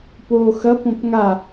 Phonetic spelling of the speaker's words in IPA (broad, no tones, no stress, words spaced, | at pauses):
poːxɐ põpŋa